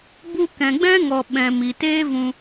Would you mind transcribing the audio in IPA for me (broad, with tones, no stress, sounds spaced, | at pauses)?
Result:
b u˧ k ɛ̃˨ ɡ͡b ɛ̃˦ ŋ ɔ˨ ɓ ɛ̃˨ m i˨ t eː˦ v ũ˧